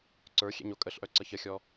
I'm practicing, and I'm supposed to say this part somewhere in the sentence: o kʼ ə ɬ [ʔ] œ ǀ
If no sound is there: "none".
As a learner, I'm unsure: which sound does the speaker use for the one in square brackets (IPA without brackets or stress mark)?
ʔ